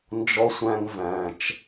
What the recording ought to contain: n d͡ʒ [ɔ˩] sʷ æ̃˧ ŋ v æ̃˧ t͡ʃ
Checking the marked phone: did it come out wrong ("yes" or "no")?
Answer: yes